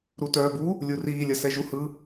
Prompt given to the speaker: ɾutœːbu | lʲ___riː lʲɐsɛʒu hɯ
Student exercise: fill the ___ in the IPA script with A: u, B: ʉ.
A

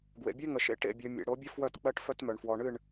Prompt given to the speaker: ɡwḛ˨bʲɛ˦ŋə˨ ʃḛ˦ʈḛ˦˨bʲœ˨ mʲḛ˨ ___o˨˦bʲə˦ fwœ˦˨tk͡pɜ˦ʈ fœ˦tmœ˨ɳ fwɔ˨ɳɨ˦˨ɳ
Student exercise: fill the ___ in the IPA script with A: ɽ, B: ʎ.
A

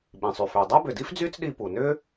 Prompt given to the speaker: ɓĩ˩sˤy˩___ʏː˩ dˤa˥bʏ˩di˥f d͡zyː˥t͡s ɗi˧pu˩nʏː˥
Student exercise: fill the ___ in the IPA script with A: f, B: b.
A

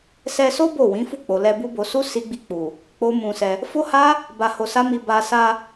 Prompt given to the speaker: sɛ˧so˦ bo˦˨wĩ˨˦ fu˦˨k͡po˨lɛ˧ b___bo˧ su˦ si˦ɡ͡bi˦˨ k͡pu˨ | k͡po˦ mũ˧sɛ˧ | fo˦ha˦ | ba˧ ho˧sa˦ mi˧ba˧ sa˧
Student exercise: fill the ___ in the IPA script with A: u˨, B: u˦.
B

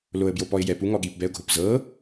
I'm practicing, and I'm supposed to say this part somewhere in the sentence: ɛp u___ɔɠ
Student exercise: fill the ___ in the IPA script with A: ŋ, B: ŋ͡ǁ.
A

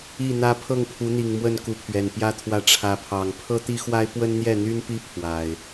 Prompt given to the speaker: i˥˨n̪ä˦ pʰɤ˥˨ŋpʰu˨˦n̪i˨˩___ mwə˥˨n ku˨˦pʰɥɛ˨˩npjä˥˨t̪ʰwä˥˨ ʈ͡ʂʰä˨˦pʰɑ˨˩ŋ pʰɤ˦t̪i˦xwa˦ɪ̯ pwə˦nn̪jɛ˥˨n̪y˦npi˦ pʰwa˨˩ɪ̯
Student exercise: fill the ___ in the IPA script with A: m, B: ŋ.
B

